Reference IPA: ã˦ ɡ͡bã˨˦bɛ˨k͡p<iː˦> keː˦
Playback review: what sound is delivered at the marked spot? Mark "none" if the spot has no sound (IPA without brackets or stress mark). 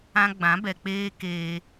eː˦